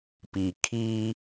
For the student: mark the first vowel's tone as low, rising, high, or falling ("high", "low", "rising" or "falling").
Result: low